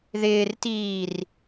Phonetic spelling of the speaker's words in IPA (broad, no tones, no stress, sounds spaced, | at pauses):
ð ɪː r t iː r